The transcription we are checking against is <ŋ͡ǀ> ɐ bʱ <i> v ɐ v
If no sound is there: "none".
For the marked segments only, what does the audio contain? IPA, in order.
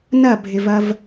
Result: n, ɪ

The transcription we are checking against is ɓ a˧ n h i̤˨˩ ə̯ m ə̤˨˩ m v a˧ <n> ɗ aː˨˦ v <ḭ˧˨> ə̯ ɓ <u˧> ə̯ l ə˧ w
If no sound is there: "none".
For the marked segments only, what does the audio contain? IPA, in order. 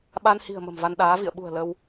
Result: n, ḭ˧˨, ṳ˨˩

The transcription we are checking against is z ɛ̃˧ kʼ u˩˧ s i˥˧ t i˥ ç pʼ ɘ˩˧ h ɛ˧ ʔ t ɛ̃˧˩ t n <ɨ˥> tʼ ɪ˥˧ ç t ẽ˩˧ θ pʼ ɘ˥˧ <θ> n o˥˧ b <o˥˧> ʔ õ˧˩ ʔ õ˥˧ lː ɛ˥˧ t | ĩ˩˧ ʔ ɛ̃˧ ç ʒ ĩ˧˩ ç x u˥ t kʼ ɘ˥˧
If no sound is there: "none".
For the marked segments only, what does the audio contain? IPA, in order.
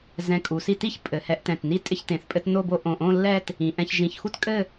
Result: i˥, t, o˥˧

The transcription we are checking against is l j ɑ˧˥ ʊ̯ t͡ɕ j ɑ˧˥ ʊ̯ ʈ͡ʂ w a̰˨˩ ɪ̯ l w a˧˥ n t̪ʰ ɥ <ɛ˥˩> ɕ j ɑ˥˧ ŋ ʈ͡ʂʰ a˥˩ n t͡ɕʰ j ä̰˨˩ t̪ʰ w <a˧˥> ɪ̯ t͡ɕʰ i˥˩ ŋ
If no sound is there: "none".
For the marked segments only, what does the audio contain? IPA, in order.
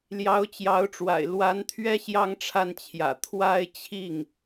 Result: ɛ˥, a˥˧

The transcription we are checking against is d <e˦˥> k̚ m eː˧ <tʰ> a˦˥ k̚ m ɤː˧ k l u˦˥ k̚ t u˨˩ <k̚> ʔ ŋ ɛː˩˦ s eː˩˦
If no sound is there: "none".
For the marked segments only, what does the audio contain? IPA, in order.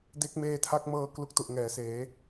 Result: e˦˥, tʰ, none

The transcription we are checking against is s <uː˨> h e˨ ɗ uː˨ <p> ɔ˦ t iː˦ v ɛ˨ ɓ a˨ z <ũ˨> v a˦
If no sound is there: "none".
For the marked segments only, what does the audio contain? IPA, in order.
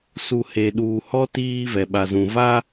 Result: u˨, h, ũ˨

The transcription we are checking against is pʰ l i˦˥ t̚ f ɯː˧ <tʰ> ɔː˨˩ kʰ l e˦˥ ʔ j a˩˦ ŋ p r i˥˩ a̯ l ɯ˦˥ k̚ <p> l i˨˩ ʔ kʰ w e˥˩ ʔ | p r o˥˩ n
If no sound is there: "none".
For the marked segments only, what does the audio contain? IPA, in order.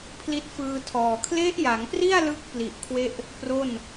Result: tʰ, p

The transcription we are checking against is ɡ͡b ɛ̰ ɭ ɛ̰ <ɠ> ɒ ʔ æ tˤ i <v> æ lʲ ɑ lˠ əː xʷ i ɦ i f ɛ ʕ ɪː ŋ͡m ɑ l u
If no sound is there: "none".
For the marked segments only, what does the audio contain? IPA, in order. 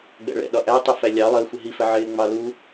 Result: ɗ, f

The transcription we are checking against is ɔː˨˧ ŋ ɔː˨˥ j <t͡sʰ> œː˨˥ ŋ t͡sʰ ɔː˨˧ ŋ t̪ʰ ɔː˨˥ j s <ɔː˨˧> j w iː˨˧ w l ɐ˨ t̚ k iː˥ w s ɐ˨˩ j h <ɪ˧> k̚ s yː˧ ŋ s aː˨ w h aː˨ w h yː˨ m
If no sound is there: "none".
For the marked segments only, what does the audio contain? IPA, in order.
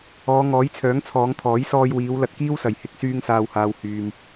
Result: t͡sʰ, ɔː˧, ɪ˧

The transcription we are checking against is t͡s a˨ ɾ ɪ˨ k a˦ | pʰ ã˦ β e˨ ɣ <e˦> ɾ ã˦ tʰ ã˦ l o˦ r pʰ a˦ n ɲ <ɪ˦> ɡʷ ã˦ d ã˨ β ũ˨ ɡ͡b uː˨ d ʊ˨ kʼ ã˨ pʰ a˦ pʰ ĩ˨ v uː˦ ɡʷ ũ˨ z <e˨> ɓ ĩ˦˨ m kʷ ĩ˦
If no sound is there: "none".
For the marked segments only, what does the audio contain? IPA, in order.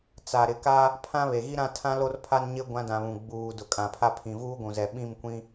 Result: i˦, ɪ˦, ɛ˨

